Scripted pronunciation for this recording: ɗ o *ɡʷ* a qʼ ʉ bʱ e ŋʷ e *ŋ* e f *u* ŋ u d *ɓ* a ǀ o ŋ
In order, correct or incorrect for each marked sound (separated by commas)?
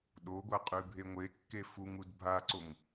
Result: correct, incorrect, correct, incorrect